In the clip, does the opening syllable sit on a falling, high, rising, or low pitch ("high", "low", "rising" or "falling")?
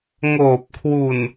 low